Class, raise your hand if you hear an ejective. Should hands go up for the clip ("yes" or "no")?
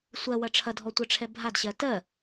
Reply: no